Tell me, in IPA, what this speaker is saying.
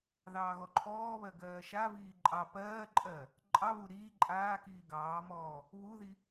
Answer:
ðɑːɣɔǃʰɔːβɜ ɡɜːʃaviː ǃʼɑ pɜːǃʼɜ | ǃʼɑβu ɾiː ǃʼaːkiː ɡɑːmɔː | βuði

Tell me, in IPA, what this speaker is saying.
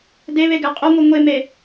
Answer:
deβe ɡæqʼoŋʷe ŋʷeme

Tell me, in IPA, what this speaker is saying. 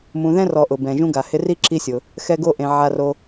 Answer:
mũ˨ðɛ̃˥ rɔ˨ʔʊ˩bɛ̃˩ ʒũ˦ɡa˩hɪ˦ ri˥ǁi˦sʲʊ˩ | xɛ˦ɡo˦ʔẽ˨ ʕa˨ro˨

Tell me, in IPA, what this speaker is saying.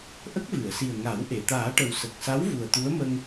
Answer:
ʔə˦˥k̚vɨ˨˩˨ə̯si˨˩ə̯ ŋa˨˩˦w ʔe˨˩˨t̪aː˨˩˦ʈə˨˩w sə˨˩k̚sa˧˥w vu˨˩ə̯t̪u˧˥ə̯mə˧ŋ

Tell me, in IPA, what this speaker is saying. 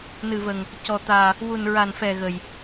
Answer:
nɨ˧və˧ŋ | cɔ˧t̪aː˧ | wu˧nɹa˧nfɛ˧ ɣə˧j

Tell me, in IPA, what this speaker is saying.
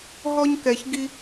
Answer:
ɦɔ˧ɲkɛ˨çɡi˧

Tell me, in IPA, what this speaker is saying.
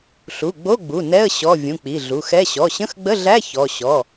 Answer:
ɬu˩˧˩ɡ͡bo˧˥˧ɡ͡bu˩˧˩ nɛ˧˥˧ə̯ ɕɔ˩˧˩ vʲũ˩˧˩k͡pi˩˧˩ɮu˩˧˩xɛ˧˥˧ ɕɔ˩˧˩ɕə̃˧˥˧xɡ͡bə˧˥˧ɮæ˧˥˧ çɔ˩˧˩ ɕɔ˩˧˩

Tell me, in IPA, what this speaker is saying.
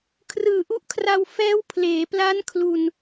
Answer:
kʰrɯː˨˩ʔu˦˥ʔkʰra˧w fɛː˦˥wpʰleː˩˦pla˦˥n kʰlu˧n

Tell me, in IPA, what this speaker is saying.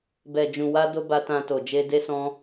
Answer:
bɛ˨d͡ʒũ˨ wa˧do˧ ba˧tã˧ to˨d͡ʒe˧ de˦sɔ̃˦

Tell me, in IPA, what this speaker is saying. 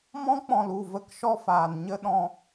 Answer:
mɔ̃˦k͡pɔ̃˨lu˦˨ və˦kʃɔ˦faː˨n ɲə˦ɗɔ̃˧

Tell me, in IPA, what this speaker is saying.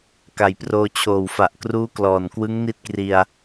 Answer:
ka˨˩j proː˧ t͡ɕʰoː˨˩wfa˨˩ʔkruː˦˥ klɔː˨˩n kwɯ˦˥ŋ ni˥˩t̚kri˧a̯

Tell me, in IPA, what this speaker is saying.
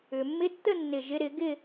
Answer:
ʏ˩mːɪ˧˥tːə˥˧ nːɪ˧˩ʒɪ˧˥ɾɪ˩˥ ɡɪ˥˧

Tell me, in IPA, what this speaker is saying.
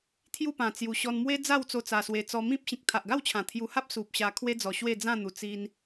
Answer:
t̪ʰju˥˧ pã˨˩t͡sju˨˩ ɕɔ˧nmwe˦ d͡za˥˧wt͡so˧ t͡sa˧swe˧t͡sɔ˧ mĩ˦p̚ɕĩ˨k̚ t̪ʰa˨ʔɡa˥˧wt͡ɕʰã˨˩ t̪ʰju˧ha˦p̚ su˨p̚ ɕa˧kʰwe˦d͡zɔ˨˩ ɕwe˥˧d͡zã˥˧n̪u˨˩ t͡si˧n

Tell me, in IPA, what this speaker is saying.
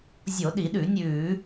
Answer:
zʲo˧˩˧ɗi˧˩˧ɗʉ˧˩˧nʲʉː˧˩˧

